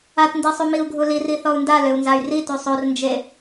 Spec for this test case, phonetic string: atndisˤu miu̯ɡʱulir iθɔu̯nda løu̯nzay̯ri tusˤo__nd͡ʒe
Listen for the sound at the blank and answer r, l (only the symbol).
r